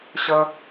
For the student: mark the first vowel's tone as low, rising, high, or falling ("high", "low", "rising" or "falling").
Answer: high